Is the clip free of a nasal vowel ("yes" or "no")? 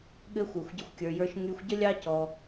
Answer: yes